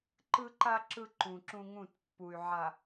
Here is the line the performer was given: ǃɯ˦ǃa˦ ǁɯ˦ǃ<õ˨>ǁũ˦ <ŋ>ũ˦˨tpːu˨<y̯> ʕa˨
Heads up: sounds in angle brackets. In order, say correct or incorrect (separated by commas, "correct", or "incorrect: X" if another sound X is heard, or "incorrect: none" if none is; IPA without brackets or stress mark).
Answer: incorrect: ũ˨, correct, correct